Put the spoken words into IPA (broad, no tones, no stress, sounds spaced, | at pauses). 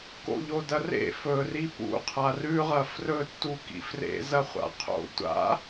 k o̰ ʎ o d ɐ r ḛ f ɵ r i p ṵ qʰ a r ʉ ʁ ɐ f r ɵ tː u k ḭ f r ḛ z ɐ χʷ a̰ qʰ o̰ tʷ a̰